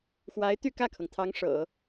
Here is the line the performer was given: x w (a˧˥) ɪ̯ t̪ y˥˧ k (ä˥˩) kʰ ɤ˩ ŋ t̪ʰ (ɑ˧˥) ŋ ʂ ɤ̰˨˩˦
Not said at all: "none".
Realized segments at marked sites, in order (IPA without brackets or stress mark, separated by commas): a˧˥, ä˥˩, ɑ˧˥